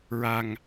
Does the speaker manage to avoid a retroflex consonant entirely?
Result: yes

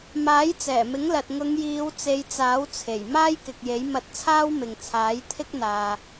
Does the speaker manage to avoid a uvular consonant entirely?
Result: yes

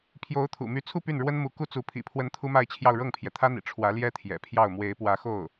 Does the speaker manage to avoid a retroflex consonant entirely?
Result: no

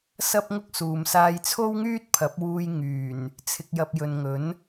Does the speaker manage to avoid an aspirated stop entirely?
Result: no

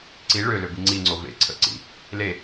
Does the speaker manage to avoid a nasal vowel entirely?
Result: yes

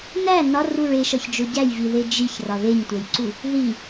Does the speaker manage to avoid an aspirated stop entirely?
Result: yes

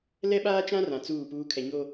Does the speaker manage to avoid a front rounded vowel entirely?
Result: yes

